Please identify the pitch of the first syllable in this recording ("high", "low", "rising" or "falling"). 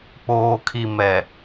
low